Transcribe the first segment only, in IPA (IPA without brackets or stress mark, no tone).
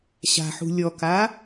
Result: ɕ